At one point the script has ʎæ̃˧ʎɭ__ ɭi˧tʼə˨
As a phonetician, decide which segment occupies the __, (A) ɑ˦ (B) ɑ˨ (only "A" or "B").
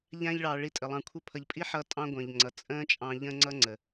B